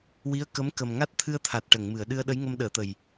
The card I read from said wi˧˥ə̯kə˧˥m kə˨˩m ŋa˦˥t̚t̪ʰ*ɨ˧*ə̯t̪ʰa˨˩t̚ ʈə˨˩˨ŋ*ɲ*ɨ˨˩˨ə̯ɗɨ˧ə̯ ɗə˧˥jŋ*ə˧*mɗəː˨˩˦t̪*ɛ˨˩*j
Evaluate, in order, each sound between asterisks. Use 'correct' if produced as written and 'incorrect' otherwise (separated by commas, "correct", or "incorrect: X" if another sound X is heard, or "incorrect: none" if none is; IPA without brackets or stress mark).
correct, incorrect: m, correct, incorrect: ə˨˩